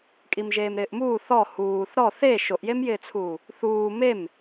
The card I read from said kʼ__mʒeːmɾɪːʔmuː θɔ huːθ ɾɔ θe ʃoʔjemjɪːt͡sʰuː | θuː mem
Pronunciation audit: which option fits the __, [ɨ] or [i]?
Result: i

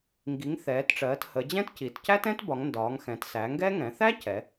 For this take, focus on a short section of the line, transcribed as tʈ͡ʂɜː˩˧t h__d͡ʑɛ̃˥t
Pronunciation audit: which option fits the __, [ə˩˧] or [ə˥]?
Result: ə˩˧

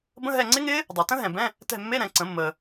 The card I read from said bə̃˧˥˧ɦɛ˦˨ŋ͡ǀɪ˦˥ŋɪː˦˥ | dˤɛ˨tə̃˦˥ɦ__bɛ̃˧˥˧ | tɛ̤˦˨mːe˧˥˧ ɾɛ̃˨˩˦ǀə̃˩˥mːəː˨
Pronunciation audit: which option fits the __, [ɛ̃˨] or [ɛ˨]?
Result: ɛ̃˨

